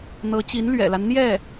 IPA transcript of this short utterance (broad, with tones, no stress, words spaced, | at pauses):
n̪ɤ˧˥t͡ɕi˧˥n lɥɛ̰˨˩la˦n n̪jɛ˥˩